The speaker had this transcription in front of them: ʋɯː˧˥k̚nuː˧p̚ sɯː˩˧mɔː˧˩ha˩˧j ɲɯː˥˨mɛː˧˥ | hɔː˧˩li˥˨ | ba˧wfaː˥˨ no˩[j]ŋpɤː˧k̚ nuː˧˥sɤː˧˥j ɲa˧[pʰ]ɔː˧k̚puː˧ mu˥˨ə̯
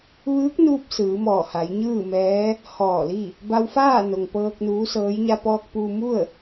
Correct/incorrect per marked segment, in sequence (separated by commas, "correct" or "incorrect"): incorrect, incorrect